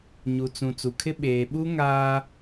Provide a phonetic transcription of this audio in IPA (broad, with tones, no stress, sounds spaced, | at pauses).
ɲ u˨ t͡s ũ˨ t͡s u˨ kʰ ɪ˦ ɓ eː˨ ɓ u˦ ŋ aː˦